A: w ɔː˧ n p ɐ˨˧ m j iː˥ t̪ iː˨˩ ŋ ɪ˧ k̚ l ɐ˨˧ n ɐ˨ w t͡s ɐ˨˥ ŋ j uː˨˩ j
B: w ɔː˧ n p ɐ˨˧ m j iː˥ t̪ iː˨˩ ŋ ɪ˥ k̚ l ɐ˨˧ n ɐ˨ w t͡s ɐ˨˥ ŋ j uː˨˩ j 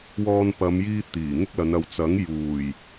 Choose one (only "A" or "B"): B